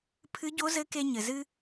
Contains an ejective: no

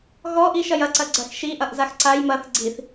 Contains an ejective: no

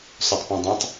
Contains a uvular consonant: no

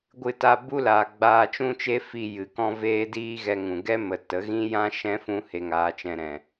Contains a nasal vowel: yes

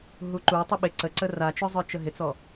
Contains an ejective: no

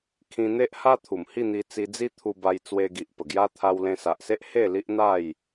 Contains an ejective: no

